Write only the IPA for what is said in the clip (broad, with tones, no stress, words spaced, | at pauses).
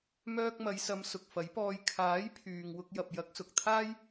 mœː˧k̚mɐ˨˧jsɐ˨˧m sʊ˨k̚fɐ˨˥jpɔː˧j kʰaː˨˥jpʰyː˨ŋ wʊ˧k̚jɐ˨p̚ jɐ˨˥k̚sʊ˨k̚t̪ʰaː˥j